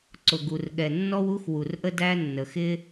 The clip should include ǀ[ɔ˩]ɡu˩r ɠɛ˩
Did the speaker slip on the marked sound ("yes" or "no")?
yes